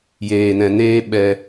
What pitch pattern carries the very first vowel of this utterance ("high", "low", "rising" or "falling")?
low